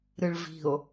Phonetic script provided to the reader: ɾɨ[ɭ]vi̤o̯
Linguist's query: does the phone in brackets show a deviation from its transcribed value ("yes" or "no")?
no